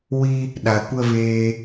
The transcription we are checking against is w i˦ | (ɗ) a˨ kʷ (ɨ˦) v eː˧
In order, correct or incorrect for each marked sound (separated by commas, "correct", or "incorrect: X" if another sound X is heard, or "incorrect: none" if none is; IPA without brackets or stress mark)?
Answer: correct, incorrect: ə˦